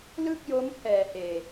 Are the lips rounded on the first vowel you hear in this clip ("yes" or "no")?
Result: no